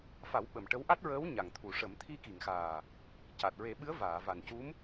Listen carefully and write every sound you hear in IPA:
f a˨˩˦ w ɓ ə˨˩ m ʈ ə˧˥ w ʔ a˦˥ t̚ ɹ əː˧˥ w ɲ a˨˩ ŋ t̪ʰ u˨˩˨ ʂ ə˨˩˦ m t̪ʰ i˧ k i˨˩˨ ŋ x aː˨˩ | c a˨˩ t̚ ɹ e˨˩˦ ɓ ɨ˧˥ ə̯ v aː˨˩˨ v a˨˩ n c u˧˥ m

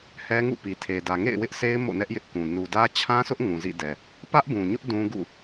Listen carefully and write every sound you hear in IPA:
h ɛ˦ ŋ ṵ˦˨ p i˨ tʰ e˨ d ä˨ ŋ ḛ˦˨ ɪ̯ w ɪ˦ ʔ sʰ e˦ ɪ̯ m o̰˦˨ n ɛ˦ ʔ j ɪ˦ ʔ k ũ˨ n u˨ d ä˦ t͡ɕʰ ã˦ sʰ ʊ˦ ʔ ŋ ũ˨ z ḭ˦˨ d ɛ˨ | p ä˦ ʔ b ũ˨ ɲ ʊ˦ ʔ d ũ˦ ɡ ṵ˦˨

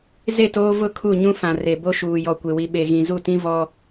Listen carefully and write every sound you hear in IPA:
z e˦˨ t oː˦ v ʊ˦˨ kʰ u˦˨ ɲ ũ˦ f ã˨ r e˨ b o˦ ʃ uː˨ j ɔ˨ kʷ e˨ w i˨ ɓ e˨ ɣ ĩ˨ z u˦˨ t ĩ˦ v ɔ˦

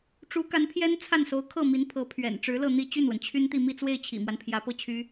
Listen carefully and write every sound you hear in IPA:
ʈ͡ʂ u˧˥ k a˧˥ n pʰ j ɛ˥ n t͡sʰ a˥˩ n s o˧˥ ʊ̯ kʰ ɤ˥˩ m i˧˥ n pʰ ɤ˧˥ pʰ ɥ ɛ̰˨˩ n ʈ͡ʂ ɻ̩˧˥ l ɤ˥˧ n̪ i˥˧ t͡ɕ y˥˩ n w ə˩ n t͡ɕʰ y˥ n t̪ i˥˧ m i˥˧ t͡s w e˥˩ ɪ̯ t͡ɕʰ ḭ˨˩ m w a˦ n pʰ j ä˧˥ p ɤ˥˩ t͡ɕʰ y˥

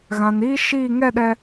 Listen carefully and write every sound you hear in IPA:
ɣ ã˨ n iː˦ ʃ iː˦˨ ŋ ɛ˦˨ ɗ ɛ˨

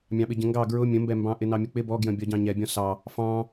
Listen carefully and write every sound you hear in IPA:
mʲ ɑ̃ ɓ ɪ ɟ ə̃ ŋ ɡ ɑ ɡ ɹ ʊ mʲ ə̃ m b ɛ m b ɑ̃ ʔ ɪ n ɑ mʲ ʊ k͡p ɪ b ɔ ɡ j ə̃ bʲ ɒ ɟ ɑ̃ ɲ ɛ bʲ ɔ̃ s ɑ | f ɑ̃

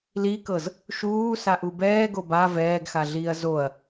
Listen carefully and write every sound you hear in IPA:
l i k ɤ z | ʃ uː s a ʔ u b ɛː ɡ o b a v ɛː ɡ x a ɮ iː ɐ̯ z o ɐ̯

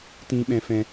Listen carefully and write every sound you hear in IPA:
t ĩ˦ ɓ ɛ̃˦ f ɛ̃˦

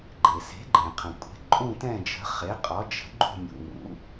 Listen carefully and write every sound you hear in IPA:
ɡ͡ǃ e˩ s e̤˩˥ ɡ͡ǃ ẽ˩ qʰ ə̃˩ kʷʼ e̤˩˥ ǃʼ ũ˦˨ t ɛ̃˦˨ d͡ʒ ə̤˩˥ χ e˩˥ qʼ ɒ˩˥ d͡ʒ ə̤˩˥ ɡ͡ǃ ṳ˦˨ mʲ ṵ˩ ŋ ṵ˩˥

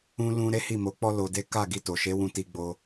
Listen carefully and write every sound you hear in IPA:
ũ˦ l ũ˦ ɾ e˦ h i˦˨ m o˨˦ k͡p ɔ˦ l o˧ d e˦ k a˦˨ ɡ i˧ t o˨ ʃ e˨˦ w ũ˧ t i˧ ɡ͡b o˧

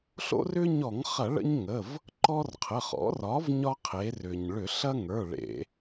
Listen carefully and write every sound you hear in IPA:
ɬ o̰˦ r ʏ˦ ɲ ɔ˧˩˧ ŋ χ ɐ˧˩˧ ɭ ə̰˦ ɲ ŋ ə˩˧˩ v | ǃ ɔ˦ r qʰ ə˩˧˩ χ ɔ̰˩˥ r ɒ˩˥ v ɲ ɒ˦ qʰ e˩˧ r ʏ˩ ɲ ɭ ʏ˧˩˧ ɬ ɐ˦ ŋ ə˞˩˧˩ ɭ ḛ˧˩˧

